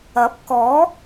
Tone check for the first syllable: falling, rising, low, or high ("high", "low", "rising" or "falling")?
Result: rising